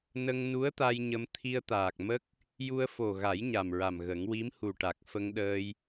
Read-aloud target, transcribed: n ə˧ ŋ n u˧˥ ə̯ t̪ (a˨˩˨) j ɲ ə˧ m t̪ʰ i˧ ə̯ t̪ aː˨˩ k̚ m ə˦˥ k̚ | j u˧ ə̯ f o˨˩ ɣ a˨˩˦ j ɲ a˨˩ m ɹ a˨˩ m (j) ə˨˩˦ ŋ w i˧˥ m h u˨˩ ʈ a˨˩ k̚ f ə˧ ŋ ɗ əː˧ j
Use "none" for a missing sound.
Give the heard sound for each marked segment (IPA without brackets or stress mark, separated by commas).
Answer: a˧, ɣ